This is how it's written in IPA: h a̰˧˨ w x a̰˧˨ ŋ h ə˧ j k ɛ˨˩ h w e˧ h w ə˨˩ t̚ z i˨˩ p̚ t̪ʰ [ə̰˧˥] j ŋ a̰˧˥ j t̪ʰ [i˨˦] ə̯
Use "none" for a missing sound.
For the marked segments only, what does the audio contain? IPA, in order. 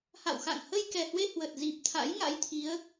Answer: a̰˧˥, i˨˦

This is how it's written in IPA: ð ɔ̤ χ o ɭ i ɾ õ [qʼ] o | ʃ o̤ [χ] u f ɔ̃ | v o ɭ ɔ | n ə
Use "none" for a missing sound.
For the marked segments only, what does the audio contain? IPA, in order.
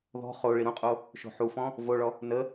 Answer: qʼ, ħ

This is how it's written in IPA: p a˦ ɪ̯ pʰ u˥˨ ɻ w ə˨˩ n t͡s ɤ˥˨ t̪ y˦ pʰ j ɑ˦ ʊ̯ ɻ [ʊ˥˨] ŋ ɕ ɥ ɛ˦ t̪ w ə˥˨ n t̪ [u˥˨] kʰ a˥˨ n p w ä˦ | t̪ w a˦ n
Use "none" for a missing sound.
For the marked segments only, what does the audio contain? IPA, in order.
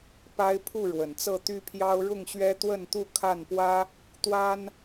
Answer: ʊ˥˨, u˥˨

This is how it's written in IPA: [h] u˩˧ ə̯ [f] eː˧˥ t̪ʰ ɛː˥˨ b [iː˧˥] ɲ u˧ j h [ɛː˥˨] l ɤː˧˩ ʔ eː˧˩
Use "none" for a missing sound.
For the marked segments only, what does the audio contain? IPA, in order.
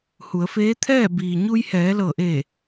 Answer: h, f, iː˩, ɛː˩˧

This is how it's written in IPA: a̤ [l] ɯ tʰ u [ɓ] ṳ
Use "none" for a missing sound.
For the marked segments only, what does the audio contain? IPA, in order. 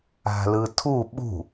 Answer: l, ɓ

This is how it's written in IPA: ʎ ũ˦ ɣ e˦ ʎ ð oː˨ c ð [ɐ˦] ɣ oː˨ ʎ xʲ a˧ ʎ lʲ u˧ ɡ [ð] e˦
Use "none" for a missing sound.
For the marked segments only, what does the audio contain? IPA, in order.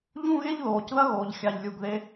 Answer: ɐ˦, ð

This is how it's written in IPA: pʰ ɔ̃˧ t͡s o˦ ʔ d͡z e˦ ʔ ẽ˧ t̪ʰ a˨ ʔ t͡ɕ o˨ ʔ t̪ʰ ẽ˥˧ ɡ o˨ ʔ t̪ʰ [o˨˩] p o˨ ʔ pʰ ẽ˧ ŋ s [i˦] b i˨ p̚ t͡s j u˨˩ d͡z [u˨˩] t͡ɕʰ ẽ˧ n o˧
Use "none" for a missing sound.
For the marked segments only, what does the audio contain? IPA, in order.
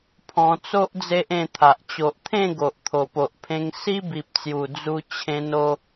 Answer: o˨˩, i˦, u˧

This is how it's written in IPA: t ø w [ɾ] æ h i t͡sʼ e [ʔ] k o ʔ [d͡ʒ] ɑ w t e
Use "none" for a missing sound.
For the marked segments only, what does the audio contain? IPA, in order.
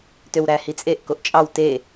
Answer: ɾ, ʔ, t͡ʃʼ

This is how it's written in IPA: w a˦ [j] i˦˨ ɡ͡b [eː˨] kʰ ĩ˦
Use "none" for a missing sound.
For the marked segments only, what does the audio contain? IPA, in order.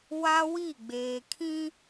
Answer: w, eː˨

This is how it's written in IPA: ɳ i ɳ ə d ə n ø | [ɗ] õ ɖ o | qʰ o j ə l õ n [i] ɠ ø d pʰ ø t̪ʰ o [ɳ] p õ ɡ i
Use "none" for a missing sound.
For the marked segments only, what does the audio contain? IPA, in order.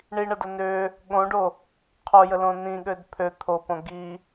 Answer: ɠ, ĩ, none

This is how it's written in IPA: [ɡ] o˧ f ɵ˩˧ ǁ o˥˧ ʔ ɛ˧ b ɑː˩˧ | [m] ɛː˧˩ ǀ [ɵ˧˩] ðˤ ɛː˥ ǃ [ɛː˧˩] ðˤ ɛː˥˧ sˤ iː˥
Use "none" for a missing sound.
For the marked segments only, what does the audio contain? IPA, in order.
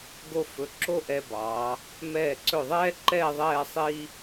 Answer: ɡ, m, ɵ˧˩, ɛː˥˧

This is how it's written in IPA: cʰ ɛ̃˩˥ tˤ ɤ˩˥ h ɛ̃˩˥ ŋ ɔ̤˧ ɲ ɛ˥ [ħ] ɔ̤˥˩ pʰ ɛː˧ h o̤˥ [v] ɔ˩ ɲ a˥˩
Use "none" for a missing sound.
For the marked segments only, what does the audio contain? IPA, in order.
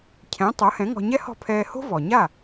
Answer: h, v

